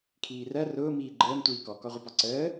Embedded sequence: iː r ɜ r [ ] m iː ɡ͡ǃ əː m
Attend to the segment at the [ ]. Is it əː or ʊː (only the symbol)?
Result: ʊː